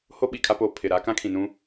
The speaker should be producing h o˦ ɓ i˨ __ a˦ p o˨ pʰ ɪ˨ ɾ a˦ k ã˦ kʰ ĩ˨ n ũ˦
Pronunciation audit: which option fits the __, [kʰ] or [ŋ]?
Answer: kʰ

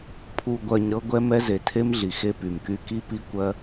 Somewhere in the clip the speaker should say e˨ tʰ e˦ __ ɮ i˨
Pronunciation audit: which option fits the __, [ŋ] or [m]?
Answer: m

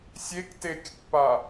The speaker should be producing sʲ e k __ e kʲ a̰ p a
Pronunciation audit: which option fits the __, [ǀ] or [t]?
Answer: t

